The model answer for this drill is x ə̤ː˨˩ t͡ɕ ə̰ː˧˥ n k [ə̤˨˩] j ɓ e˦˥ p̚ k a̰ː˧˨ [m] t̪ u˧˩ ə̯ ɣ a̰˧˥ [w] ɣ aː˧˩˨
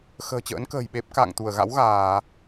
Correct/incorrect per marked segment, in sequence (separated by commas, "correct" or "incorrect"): incorrect, incorrect, correct